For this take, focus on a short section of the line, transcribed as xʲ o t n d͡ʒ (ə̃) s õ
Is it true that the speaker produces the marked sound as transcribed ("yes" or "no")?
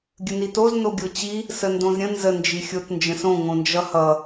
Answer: yes